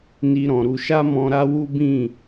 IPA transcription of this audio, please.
n i˧ ɾ ɔ̃˨ ɾ u˨ ʃ a˧ m ɔ̃˧ ɾ a˦ w u˦ b ĩ˦˨

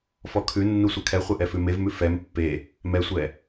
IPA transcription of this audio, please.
f ɔ kʰ ʉ nː u sʷ ɘ kʰ ɛ χʷ ɛ ʔ ɛ f ʉ m e v m ʉ f ɛ m pː e | m ɛ sʷ ɛ

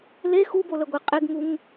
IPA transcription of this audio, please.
l e x u b o l ə ɡʷ e qʼ e ɡ ŋ u ŋ

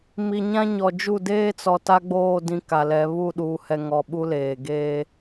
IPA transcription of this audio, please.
m i˨ ɲ ã˦ ɲ ɔ˨ d͡ʒ u˦˨ d eː˦ t͡s ɔ˨ t a˦ ɡ͡b oː˦˨ d ĩ˦ k a˨ l ɛ˨˦ β u˦˨ ɗ uː˨ h ɛ˨ ŋ ɔ˨ ɓ u˦ l eː˨ ɡ eː˦

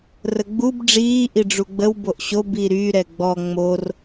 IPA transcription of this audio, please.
r ə ɡ͡b u b ɖ͡ʐ iː ʔ i ɖ͡ʐ u ɡ͡b ə w b o ʔ ɕ o b i ɾ y ɾ ɛ ɡ͡b ɔ ŋ͡m o r

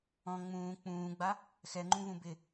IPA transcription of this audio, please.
ɔ̃ ŋ͡m ũː k͡p ũː ɡ͡b a | x ɛ ŋ͡ǃ ũ v ũ b ɪ

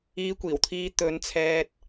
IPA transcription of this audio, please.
iː˧ kʷ iː˨˩ w t̪ʰ iː˧ t̪ ɵ˨˧ n t͡sʰ ɛː˧ t̚

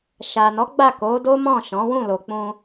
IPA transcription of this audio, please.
ʃ a˨ n ɔ˨˦ ɡ͡b a˦˨ k o˨˦ d o˦ m ɔ̃˦˨ ʃ ɔ̃˨˦ w ũ˦˨ l o˨ k͡p ũ˧

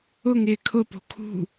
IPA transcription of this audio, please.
ʊ ŋ ɪː kʰ ʊ p o̤ kʰ ṳ

